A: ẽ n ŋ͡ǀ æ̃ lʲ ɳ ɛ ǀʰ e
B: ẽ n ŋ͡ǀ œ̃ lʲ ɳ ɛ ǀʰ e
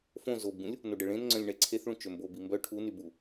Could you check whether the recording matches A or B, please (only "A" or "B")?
B